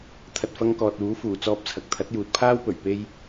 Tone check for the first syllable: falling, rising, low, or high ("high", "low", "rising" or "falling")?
low